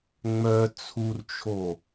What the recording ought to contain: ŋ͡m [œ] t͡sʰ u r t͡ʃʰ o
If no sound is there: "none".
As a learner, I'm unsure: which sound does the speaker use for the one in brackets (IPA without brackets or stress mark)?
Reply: œ